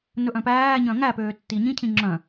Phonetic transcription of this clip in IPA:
n ɵ ʔ œ̃ p æː ɲ œ̃ ŋ æ p øː tː i ɲ ĩ cʰ ĩ ŋ͡ǁ œ̃

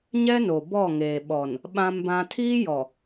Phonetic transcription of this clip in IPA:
ɲ ɛ˦ n o˨ b ɔ˦˨ ŋ eː˨ ɓ ɔ˨ n | ɓ ã˦ m b ã˦ tʰ iː˦ j ɔ˨

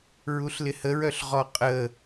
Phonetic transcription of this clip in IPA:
ɹ u ɬ l ɪ h ə ɹ œ ɬ ʁ ɔ qʼ ə

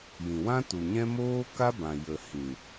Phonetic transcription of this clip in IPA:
j ĩ˨ w ã˦ t u˨ ɲ ɛ̃˦ m oː˦ k a˦ b ã˨ j ə˨ h ĩ˨

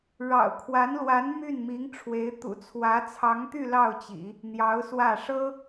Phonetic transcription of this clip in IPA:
ɻ ɑ̰˨˩ ʊ̯ kʰ w a˧˥ n l w a˧˥ n m y˥˩ n m i˧˥ ŋ ʈ͡ʂʰ w e˧˥ ɪ̯ t̪ ṵ˨˩ t͡sʰ w ä˧˥ t͡sʰ ɑ˧˥ ŋ t̪ y˥˧ l ɑ˥˩ ʊ̯ t͡ɕ ḭ˨˩˦ | n̪ j ɑ˧˥ ʊ̯ s w ä˥˩ ʂ ɤ˥

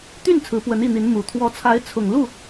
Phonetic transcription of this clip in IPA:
t̪ y˥˩ n t͡sʰ ɹ̩˧˥ p w ə˧˥ n i˥˩ n̪ i˧˥ n m u˨˩ t̪ʰ w ɔ˧˥ t͡sʰ a˧˥ ɪ̯ t͡sʰ ʊ˨˩ ŋ l u˥˩

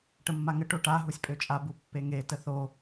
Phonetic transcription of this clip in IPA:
ʈ ə mː a ŋ ə ʈ o ʈ a ɦ u sʲ pʼ ø t͡ʃʼ a b u pː e ŋ e t ə θ o

